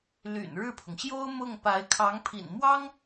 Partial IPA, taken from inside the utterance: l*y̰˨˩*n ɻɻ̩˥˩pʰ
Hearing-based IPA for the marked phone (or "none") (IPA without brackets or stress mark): y̰˨˩